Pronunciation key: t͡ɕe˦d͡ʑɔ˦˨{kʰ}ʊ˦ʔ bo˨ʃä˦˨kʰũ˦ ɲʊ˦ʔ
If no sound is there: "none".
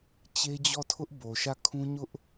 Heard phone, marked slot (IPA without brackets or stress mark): tʰ